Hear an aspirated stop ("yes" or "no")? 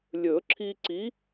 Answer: yes